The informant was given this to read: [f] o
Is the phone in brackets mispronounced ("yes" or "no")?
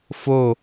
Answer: no